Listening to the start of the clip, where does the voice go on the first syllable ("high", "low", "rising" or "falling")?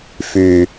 low